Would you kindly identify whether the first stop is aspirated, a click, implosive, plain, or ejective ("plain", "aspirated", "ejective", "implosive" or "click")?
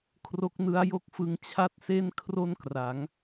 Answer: aspirated